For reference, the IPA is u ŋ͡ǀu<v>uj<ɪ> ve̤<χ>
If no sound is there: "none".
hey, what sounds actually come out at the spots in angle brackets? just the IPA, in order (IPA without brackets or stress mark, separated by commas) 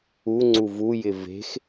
v, ɪ, x